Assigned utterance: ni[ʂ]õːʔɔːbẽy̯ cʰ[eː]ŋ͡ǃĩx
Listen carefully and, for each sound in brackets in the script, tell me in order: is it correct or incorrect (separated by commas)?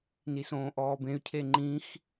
incorrect, incorrect